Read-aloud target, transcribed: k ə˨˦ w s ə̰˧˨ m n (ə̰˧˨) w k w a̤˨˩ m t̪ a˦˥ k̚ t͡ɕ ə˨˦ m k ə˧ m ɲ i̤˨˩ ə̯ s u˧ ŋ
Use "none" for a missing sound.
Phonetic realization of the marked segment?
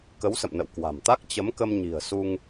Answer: ə̰˧˨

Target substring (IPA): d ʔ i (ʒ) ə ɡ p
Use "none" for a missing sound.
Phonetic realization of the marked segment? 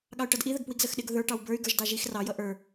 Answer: ð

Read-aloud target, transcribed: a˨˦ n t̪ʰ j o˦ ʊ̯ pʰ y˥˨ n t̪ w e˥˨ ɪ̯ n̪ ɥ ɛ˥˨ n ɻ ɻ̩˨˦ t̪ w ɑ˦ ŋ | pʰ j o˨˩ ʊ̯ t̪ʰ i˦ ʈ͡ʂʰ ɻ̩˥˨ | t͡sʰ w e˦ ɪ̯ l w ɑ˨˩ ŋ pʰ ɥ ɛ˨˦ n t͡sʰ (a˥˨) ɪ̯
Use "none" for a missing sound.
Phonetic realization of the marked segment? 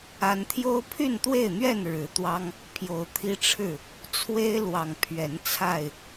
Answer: a˥˨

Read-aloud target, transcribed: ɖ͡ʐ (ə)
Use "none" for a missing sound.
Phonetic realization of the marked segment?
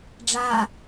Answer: a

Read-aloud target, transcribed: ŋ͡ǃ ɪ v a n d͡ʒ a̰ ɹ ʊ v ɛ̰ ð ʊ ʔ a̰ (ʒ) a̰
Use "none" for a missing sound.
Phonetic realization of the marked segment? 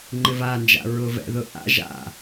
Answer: ʒ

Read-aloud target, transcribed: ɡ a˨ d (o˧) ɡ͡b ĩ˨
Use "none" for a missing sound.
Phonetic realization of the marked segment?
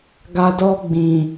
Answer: ɔ˧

